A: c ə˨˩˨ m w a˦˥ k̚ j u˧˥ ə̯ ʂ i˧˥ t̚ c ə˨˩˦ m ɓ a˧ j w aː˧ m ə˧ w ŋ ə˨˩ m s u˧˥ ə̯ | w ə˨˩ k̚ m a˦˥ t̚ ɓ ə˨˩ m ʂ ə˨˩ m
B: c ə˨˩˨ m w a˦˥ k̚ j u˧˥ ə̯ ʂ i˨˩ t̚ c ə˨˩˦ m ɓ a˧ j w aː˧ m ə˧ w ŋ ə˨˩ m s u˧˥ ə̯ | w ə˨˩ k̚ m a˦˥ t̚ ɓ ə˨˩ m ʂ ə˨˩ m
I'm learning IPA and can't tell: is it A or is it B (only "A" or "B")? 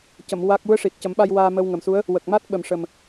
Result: B